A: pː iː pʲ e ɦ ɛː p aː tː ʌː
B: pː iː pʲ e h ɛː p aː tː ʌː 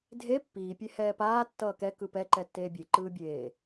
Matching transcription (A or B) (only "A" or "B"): B